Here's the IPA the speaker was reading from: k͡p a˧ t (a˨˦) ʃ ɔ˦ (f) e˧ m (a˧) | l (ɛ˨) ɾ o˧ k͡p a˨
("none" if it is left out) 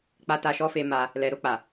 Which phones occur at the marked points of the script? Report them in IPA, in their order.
a˧, f, a˧, ɛ˨

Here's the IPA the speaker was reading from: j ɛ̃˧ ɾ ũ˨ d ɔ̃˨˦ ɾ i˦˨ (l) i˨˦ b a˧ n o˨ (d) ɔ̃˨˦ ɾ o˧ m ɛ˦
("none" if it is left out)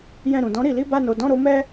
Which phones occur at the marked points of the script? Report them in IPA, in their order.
l, d

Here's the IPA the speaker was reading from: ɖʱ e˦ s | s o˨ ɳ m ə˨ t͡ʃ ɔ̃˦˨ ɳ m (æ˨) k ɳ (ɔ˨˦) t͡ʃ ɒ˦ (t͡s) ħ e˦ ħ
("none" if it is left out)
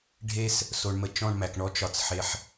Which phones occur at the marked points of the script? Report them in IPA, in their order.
æ˨, ɔ˦, t͡s

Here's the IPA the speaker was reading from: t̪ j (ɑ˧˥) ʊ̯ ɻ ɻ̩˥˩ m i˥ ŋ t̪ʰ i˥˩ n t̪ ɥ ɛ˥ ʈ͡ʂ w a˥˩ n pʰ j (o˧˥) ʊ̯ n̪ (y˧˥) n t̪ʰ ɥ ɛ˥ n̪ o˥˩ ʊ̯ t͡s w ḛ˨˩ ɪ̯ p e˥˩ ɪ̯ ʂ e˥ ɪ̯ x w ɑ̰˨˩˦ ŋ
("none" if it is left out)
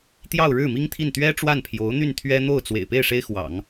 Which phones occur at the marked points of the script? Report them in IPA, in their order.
ɑ˥˧, o˧˥, y˥˩

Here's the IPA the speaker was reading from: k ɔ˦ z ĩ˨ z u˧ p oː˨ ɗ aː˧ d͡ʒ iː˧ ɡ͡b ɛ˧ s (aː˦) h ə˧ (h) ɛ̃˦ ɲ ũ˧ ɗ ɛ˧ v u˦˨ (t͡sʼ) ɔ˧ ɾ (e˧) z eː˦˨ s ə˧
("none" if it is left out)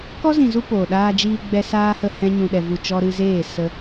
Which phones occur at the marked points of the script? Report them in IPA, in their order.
aː˦, h, t͡ʃ, ɨ˧

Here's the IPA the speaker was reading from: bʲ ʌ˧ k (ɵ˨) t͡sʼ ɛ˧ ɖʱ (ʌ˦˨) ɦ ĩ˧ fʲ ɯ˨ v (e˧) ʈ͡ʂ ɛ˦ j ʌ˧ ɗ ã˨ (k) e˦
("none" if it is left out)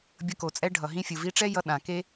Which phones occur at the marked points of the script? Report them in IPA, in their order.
o˨, ʌ˨, i˧, k

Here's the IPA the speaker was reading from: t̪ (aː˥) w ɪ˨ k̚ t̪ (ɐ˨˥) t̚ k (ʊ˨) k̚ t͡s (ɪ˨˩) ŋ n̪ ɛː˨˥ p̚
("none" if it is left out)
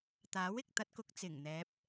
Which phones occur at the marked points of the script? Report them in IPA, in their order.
aː˨˥, ɐ˧, ʊ˨, ɪ˨˩

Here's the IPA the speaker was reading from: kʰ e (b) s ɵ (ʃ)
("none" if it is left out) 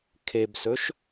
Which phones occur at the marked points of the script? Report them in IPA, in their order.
b, ʃ

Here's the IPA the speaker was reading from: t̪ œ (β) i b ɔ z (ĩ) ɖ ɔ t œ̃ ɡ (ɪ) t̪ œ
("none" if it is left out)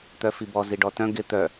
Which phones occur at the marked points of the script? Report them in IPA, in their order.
f, i, ɪ

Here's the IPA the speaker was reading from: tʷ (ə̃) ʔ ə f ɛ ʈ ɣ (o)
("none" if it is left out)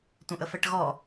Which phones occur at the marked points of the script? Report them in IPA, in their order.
ə̃, ɔ

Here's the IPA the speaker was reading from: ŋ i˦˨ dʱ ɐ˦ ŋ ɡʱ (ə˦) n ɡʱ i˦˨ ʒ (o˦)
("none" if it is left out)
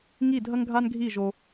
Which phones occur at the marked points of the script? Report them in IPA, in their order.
a˦, o˧

